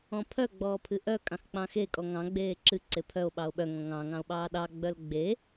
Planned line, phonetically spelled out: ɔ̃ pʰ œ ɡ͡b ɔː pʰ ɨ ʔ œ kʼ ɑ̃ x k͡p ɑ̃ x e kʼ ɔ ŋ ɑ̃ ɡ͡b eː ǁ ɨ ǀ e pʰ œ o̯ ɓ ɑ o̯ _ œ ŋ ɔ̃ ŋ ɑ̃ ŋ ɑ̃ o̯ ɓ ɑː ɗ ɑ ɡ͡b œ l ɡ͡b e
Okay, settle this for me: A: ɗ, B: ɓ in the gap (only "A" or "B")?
B